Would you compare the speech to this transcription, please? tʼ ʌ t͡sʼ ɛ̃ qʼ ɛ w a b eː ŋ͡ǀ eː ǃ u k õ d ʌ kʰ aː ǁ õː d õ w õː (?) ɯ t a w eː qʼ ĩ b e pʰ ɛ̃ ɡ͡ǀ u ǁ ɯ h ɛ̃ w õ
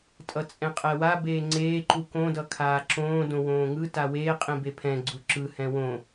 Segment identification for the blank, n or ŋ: ŋ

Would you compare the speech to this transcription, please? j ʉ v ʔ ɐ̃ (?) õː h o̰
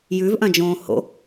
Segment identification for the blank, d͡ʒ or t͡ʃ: d͡ʒ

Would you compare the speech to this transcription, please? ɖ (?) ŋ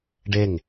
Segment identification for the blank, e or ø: e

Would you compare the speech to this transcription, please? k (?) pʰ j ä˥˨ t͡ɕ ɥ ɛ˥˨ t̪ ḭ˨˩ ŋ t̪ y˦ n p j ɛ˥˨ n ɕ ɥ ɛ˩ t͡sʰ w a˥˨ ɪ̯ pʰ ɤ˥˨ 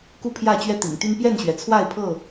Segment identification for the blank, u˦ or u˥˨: u˥˨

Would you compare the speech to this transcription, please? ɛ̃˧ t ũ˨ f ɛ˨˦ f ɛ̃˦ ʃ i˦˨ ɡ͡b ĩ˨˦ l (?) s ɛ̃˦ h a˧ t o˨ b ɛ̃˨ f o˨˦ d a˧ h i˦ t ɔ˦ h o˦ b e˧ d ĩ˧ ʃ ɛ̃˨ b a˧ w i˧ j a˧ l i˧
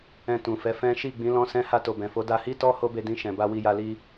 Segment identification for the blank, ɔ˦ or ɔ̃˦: ɔ̃˦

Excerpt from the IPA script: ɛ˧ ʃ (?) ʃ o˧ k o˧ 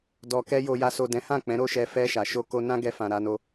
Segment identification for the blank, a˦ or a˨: a˨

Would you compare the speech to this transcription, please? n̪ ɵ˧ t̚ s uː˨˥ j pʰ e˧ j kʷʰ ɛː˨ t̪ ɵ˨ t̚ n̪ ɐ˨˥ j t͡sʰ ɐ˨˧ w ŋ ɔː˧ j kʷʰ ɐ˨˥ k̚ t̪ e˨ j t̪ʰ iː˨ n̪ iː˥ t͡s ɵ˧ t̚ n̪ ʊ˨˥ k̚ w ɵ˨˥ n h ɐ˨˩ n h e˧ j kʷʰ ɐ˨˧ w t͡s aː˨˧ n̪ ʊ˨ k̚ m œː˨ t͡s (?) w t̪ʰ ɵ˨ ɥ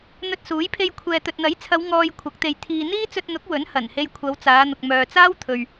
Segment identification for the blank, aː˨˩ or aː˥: aː˥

